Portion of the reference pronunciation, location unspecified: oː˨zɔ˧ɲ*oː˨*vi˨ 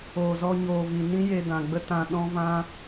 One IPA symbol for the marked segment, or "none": oː˨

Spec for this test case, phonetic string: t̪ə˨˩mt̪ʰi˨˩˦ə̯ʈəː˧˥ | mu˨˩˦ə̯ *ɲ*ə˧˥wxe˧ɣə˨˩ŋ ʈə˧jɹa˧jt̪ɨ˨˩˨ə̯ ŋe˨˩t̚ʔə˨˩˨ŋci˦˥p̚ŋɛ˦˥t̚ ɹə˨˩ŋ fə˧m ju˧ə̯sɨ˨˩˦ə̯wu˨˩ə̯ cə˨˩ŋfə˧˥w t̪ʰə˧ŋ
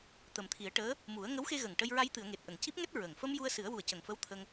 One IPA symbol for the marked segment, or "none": ŋ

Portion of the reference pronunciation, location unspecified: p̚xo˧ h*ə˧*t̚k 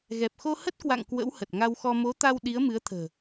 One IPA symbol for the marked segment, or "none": ə˦˥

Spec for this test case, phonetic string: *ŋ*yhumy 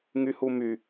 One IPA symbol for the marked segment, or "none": ŋ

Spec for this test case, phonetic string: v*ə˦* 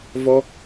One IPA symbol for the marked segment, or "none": ɔ˦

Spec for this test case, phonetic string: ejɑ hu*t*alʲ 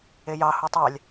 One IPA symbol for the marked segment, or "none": tˤ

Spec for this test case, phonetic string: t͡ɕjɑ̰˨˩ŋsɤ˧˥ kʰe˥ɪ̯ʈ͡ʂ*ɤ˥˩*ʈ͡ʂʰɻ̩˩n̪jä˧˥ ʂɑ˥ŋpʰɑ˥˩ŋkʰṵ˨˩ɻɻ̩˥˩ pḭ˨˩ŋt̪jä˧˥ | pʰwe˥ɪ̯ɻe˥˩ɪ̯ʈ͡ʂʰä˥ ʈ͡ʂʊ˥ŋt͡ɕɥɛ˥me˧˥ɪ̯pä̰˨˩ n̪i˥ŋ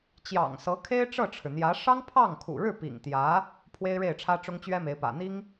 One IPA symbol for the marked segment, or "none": ɤ˥˩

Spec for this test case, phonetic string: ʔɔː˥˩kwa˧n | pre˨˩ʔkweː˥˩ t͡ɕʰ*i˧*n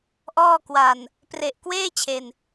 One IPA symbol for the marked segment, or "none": e˧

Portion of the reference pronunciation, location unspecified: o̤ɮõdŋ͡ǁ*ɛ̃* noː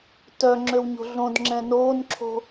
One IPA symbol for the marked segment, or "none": ɛ̃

